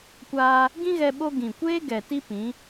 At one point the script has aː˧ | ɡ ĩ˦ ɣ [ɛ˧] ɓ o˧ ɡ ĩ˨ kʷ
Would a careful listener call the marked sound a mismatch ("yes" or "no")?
no